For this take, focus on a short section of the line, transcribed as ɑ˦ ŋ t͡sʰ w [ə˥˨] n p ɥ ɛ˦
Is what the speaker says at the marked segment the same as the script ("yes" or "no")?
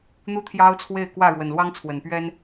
no